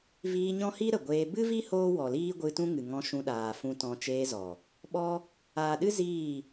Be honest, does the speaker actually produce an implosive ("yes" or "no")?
yes